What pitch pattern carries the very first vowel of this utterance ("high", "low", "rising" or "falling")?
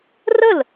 falling